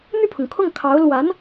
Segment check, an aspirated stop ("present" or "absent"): present